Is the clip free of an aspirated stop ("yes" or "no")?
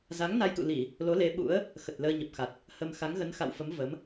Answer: yes